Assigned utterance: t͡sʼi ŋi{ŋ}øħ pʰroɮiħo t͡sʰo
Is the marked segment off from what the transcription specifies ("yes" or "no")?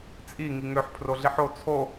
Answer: no